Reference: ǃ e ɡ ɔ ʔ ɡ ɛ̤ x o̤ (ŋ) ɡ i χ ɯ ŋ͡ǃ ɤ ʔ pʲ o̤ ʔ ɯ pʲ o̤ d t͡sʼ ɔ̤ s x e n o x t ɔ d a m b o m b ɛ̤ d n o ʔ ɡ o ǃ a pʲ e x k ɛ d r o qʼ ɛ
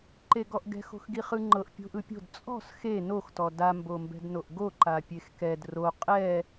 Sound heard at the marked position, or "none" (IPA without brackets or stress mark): x